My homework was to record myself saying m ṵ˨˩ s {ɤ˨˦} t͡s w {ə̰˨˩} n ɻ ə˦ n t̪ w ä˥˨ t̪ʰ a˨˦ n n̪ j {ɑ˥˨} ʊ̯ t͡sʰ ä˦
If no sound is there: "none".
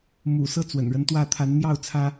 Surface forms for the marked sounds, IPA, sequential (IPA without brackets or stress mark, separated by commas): ɤ˦, ə̰˨˩, ɑ˥˨